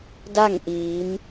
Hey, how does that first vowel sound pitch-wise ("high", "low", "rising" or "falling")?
falling